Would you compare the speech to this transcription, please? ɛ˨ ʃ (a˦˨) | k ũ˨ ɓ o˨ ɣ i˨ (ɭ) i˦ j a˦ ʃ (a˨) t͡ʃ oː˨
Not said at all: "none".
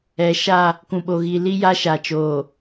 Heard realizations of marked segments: a˦˨, l, a˨

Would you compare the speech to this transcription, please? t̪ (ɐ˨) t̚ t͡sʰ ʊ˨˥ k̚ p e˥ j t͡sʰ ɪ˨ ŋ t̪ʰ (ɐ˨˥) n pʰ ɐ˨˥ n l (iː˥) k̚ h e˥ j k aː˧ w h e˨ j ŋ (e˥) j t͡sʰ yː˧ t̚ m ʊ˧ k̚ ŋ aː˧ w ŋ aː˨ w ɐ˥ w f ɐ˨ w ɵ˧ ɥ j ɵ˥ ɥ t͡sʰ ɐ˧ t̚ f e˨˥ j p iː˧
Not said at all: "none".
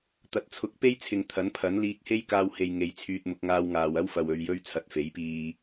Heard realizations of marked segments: ɐ˨, ɐ˨˥, iː˧, e˨

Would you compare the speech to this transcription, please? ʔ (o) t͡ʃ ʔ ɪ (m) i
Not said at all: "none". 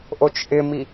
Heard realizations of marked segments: o, m

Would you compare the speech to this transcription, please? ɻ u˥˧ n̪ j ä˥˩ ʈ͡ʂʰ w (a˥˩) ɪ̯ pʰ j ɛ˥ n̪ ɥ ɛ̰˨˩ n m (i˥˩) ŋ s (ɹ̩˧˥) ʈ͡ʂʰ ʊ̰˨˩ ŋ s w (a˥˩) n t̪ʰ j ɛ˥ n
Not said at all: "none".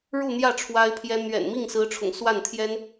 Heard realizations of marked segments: a˥, i˥˩, ɹ̩˧˥, a˥˩

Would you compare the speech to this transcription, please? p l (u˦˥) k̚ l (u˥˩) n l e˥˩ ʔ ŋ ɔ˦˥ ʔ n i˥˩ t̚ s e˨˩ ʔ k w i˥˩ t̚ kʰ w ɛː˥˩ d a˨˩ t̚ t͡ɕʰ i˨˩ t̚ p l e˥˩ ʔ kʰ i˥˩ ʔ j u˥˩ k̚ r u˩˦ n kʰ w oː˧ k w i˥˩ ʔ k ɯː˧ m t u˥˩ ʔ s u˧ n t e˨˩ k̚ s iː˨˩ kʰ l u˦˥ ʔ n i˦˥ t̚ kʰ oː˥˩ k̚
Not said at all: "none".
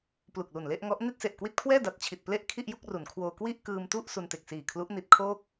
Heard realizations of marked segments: u˨˩, u˨˩

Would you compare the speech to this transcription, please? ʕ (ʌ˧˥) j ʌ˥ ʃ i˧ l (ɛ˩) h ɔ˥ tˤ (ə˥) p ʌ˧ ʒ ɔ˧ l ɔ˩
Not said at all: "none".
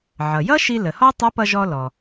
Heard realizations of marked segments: ʌ˩, ə˩, ə˧˥

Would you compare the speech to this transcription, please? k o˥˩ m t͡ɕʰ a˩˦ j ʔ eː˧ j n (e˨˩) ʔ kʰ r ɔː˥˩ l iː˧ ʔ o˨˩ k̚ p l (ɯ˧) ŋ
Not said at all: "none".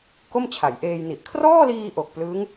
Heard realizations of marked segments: i˨˩, ɯ˦˥

